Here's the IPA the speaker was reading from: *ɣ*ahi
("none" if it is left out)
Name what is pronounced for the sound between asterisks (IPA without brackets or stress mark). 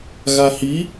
ɣ